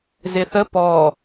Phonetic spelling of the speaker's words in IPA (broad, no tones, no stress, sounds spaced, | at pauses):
z ɪ θ ə p ɔ